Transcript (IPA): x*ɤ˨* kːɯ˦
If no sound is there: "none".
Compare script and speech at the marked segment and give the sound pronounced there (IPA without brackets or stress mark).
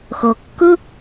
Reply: ɤ˨